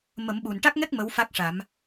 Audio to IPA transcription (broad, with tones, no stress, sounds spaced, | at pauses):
m ə˨˩˦ m ɓ u˨˩ n ʈ a˦˥ k̚ ŋ ɛ˦˥ k̚ m ə˧˥ w f a˦˥ k̚ ʂ a˨˩˦ m